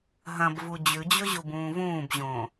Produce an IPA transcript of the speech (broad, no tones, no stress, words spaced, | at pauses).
ɦɐ̃bvu d͡ʑʉd͡ʑɵʑubũː vũːbʑõː